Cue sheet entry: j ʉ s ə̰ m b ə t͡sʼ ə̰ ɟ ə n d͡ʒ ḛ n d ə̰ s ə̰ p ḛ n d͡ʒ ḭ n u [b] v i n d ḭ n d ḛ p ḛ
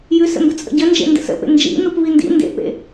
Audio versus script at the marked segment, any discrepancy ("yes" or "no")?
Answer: yes